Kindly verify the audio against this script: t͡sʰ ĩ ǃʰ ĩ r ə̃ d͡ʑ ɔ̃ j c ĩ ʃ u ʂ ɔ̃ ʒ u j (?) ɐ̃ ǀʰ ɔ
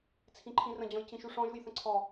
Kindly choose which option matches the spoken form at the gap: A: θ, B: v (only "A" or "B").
A